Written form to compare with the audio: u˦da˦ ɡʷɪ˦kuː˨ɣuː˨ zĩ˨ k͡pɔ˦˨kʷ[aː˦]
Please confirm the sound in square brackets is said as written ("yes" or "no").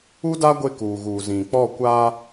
yes